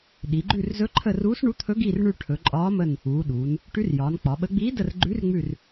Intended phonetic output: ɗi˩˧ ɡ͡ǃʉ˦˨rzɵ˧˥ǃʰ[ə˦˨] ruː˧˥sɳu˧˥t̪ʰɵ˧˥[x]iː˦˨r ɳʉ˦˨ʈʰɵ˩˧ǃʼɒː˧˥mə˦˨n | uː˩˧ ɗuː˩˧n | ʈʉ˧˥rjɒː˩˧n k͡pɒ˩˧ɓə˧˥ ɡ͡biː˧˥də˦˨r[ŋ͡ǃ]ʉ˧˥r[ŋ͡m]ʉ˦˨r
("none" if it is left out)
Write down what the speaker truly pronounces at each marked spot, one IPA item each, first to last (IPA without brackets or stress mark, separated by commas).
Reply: ə˦˨, ɡ, ɡ͡ǃ, ŋ͡m